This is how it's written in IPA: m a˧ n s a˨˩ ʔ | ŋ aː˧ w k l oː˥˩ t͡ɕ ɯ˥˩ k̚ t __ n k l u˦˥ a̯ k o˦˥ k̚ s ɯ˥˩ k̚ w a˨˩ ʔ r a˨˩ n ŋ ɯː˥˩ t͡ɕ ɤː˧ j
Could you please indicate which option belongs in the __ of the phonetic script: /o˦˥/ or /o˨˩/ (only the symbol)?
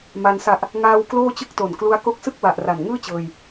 o˨˩